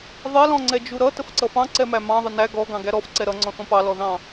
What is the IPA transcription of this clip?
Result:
ðˤ ɛ l ɔ̃ ŋ͡ǀ ɛ d͡ʒ u ɾ ʌ t ə f ǀ ʌ f ɑ̃ ǀ ɛ m æ m ɑ̃ ðˤ ə n æ ɡ ɔ ɡ ɑ̃ ɡ æ ɾ ɔ f ǀ ɛ ɾ ʌ ŋ͡ǀ ɔ̃ θ ɔ̃ p ɑ l ɔ ð ɑ̃

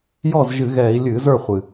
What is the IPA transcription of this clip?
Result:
j ɔ˥˩ z ʒ ɨ˧˩˧ ɣ ɛː˧˩˧ i̯ lʲ ɨː˧˩˧ z ə˞˥˩ χʷ ɨ˩

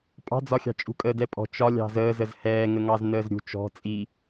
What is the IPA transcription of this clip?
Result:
pʼ ɑ̤ d͡z ɒ xʲ ɑ̤ t͡ʃʼ ṳ kʼ əː d ɛ pʼ ɔ̤ t͡ʃ ɒ lʲ ɑ̤ z əː z ə z h ɛː ŋ ə ŋ ɑ z n əː z ɾʲ ṳ t͡ʃ ɔ̤ t͡sʼ i

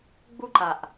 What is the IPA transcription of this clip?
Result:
ɡ͡b u ǃ a ʔ

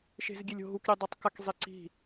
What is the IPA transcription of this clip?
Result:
ʃ e̤ z ɡʲ e lʲ o̤ ɦ u k ɾʲ e dˤ o tˤ k a k zˤ e ǀ i̤

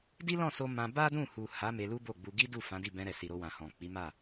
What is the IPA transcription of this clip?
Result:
d i˦ l ɔ̃˦˨ s o˧ m ã˧ b a˦ d ũ˦˨ h u˨ h a˨˦ m e˧ l u˦ b o˦˨ ɡ͡b u˧ ɡ i˦ d u˦˨ f ã˨˦ d i˦˨ b ɛ̃˧ ɾ ɛ˨ s i˨ ɾ o˧ w ã˨ h ɔ̃˨ k͡p i˨˦ m a˦˨

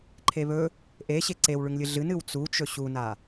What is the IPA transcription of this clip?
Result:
ǃʰ e β ɵ | ʔ e ɕ e ǀ e w ɭ ʉ ŋ lʲ ɨ ɮ ɨ n ɨ w t͡s u t͡ʃ ɵ ɕ u n a

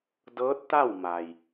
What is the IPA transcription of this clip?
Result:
d ɤː˧˥ t̚ t̪ a˥˨ w m a˩ j

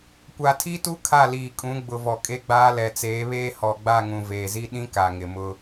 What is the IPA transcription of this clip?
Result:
kʷ a˨ tʰ i˦ t u˦ kʰ a˦˨ l iː˨ kʼ ũ˨˦ ɡ͡b ʊ˨ v ɔ˨ kʼ e˦ ɡ͡b aː˦ l ɛ˨ t͡s eː˨˦ β eː˦ h ɔ˨ ɡ͡b a˦˨ ŋ ũ˨ v eː˨ z i˦ ɗ ĩ˦ k a˨ ŋ ɪ˨ m ʊ˦

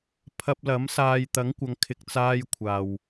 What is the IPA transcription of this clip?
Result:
pʰ ɐ˧ p̚ l ɐ˨˥ m s aː˨ j t̪ ɐ˨˥ ŋ kʷ ɐ˨˧ ŋ kʰ ɪ˨ k̚ t͡s aː˧ j kʷʰ aː˨ w

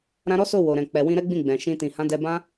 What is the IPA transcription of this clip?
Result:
ɾ ã˧ ɾ ɔ˦ s o˦˨ w o˨ ɾ ɛ̃˨ k͡p ɛ˨ w ĩ˧ ɾ ɛ˦ ɡ͡b ĩ˦˨ ɡ͡b ɛ̃˨ ʃ ĩ˧ t ĩ˨ h ã˨˦ d ɛ˧ b ã˦

